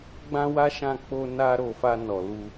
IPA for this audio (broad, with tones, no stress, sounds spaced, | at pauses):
ɡ͡b ã˦ w a˦ ʃ ã˦˨ k͡p o˧ n a˧ ɾ o˨ f a˧ n ɔ˨ l u˧